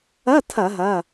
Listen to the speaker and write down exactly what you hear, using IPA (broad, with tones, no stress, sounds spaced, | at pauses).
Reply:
ɐ˧˥˧ tʰ ɐ˧˩˧ ɦ ɐ˩˧˩